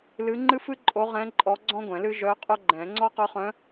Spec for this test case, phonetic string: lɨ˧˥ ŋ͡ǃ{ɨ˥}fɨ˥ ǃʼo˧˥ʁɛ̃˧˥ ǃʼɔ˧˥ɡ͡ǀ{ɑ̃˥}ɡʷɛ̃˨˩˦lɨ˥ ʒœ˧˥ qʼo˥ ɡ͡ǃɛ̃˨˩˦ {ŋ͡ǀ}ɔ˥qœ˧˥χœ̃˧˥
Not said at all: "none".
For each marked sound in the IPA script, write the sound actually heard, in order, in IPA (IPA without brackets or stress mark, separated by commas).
ɨ˥, ɔ̃˥, ŋ͡ǀ